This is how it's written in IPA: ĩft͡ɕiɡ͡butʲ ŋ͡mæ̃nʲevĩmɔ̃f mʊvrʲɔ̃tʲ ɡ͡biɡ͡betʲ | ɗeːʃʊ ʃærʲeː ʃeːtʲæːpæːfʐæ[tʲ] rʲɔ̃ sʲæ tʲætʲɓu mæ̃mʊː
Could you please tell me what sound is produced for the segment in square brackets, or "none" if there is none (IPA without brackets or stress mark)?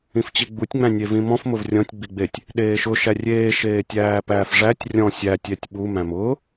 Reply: tʲ